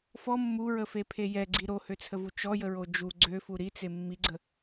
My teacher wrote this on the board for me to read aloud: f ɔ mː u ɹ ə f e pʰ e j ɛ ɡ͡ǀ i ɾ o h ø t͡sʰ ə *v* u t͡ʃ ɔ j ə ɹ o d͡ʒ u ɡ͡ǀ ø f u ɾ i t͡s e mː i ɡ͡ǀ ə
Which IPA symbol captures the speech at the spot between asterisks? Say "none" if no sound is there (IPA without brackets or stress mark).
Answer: v